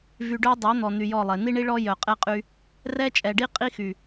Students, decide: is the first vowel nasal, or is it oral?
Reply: oral